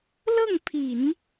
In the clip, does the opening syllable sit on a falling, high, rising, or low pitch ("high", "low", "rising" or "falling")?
falling